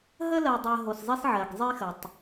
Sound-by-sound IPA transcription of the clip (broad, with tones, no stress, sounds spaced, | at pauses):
ɦ ə˦ l ɜ˨ dˤ ɜ˨ ɦ o˨ s zˤ i˦ s ʕ ɜ˨ ɡ zˤ i˦ x ə˨ tˤ